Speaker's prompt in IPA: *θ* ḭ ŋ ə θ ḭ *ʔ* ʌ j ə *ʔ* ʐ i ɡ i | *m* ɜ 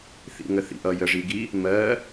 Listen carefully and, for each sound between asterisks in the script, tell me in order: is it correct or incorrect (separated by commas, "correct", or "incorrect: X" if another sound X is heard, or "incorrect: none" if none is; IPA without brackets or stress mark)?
correct, correct, incorrect: none, correct